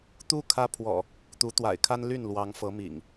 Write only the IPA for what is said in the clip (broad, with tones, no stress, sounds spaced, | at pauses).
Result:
t̪ u˦ kʰ ä˦ pʰ w ɔ̰˨˩ | t̪ u˨˦ t̪ w a̰˨˩ ɪ̯ kʰ a˦ n l y˥˨ n l w ɑ˨˦ ŋ f ɤ˨˦ m ḭ˨˩ ŋ